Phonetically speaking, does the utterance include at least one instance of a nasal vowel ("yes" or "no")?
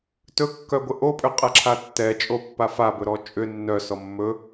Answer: no